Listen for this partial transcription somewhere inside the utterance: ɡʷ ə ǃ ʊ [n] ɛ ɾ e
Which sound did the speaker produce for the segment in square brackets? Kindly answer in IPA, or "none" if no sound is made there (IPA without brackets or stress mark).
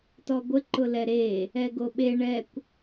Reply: l